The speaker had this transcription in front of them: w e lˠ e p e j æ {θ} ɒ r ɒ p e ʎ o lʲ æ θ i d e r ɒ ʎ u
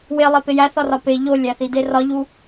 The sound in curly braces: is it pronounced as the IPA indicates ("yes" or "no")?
yes